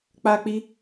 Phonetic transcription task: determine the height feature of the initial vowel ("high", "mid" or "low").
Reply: low